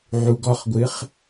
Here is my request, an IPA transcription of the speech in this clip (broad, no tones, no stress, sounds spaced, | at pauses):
ʕ u ɡ ɔ χ ɡʷ ɨ χ